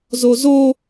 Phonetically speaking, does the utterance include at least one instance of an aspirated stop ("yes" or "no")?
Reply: no